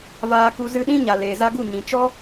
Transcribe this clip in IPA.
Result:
v aː˧ k u˧ z ɨ˧ ɗ ĩ˦ ɲ a˨ l eː˨ z a˧ ɡ u˦˨ ɲ ĩ˨ t͡ʃ ɔ˦

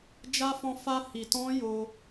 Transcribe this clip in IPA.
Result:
d͡ʒ a˧ f ɔ̃˧ f a˧ h i˧ t ɔ̃˦ j o˧

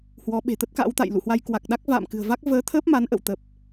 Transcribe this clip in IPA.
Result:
h w ɔ˨˦ ɓ e̤˨˩ t̪ ə˦˥ t̚ k a̰˧˥ w t̪ a̰˧˨ j l ṵ˧˨ h w a˧ j k w a˨˩ k̚ ɗ a˦˥ k̚ v a̰ː˧˨ m k ɨ̤˨˩ ə̯ v a˦˥ k̚ v əː˨˦ t̪ʰ ə˦˥ p̚ m a˨˦ n ʔ ə̰˧˨ w t̪ ə˨˩ p̚

